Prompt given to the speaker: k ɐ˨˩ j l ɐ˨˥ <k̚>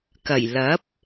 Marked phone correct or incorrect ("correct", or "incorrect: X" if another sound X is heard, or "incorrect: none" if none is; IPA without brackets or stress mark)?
incorrect: p̚